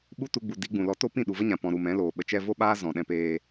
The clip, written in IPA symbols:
ɓu˦tu˧ɡ͡bu˨ di˨˦ɡ͡bũ˨lɔ˧ to˦pĩ˦˨ ɗu˨və˦ɲã˨pɔ̃˨ ɾu˨mɛ̃˨˦loː˨ ɓə˨t͡ʃɛ˧ vo˦ɓaː˦ zɔ̃˨ɗɛ̃˧peː˧

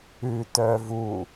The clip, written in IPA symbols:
ʉtœ vu

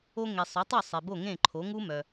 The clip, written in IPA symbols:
o˧ŋe˩ sˤʊ˩˥tˤu˥˩sˤe˩ bo˥˩ ŋẽ˥˩ǃʰo˩˥ ŋu˥mœ˩

